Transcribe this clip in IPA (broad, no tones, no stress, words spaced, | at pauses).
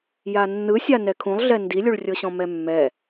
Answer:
janːɯsʲa nɛkʰũlˠɮɛ ndilʲuɭrʲɤɕɔ̃ mɛmːɛ